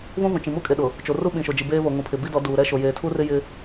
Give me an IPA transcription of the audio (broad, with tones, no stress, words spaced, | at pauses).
βũ˦vũ˨t͡ʃĩ˨ mu˦kʼe˨ɗʊ˨ | t͡ʃo˨ ru˦ɓĩ˨ʃo˨d͡ʒi˨ beː˦βo˨ŋũ˨pʰɪ˨ bi˦dɔ˨˦duː˨ ɾɛ˦ʃo˨ jeː˨tʰu˦rɪ˦ jɪ˦